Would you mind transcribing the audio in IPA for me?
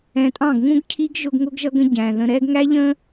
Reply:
ɛ̃˨tʼɑ̃˦˨ɡ ŋũ˦ɡcʰi˦ɡʒʊ˧ɡ ŋʊ˦ɡ ʒʌ˦ɡə̃˦ ɟæ̃˨ðə̃˧ ɾɛ˧ɡŋæ˦ʎə̃˦

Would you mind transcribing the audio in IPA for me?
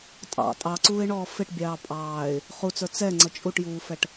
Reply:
tʼɑ̰ tʼɑǀuːɪ̯ɳɔː fɪʈbʲɑː pʼɑːɪ̯ | χut͡sə˞ t͡sɛŋ͡ǀʌ t͡ʃʼuʈjuːfɛʈ

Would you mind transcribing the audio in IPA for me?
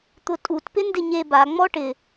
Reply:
t̪ʊtʼut pɪndɪɲe ba ŋ͡mɔʈɪ

